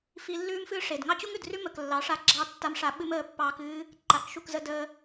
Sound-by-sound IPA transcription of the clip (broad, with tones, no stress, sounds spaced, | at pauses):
f i˧ lː ʉː˦ m f ɨː˦ ʂ e˨ d ŋ ɑ˦ t͡ɕ u˦ ŋ ʉ˨ d r ʉ˦ m ə˨ k lː ɑ˨˦ ʂ a˨ ɡ͡ǁ ɑ˧ tː a˧ m ʂ a˧ ɓ ɨ˦ m əː˧ pː ɑː˧ k ɨː˦ | ǃ a˨ k ʃ u˦˨ k z ə˧ d əː˧